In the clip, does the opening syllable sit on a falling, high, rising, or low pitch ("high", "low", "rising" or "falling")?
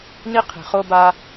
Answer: high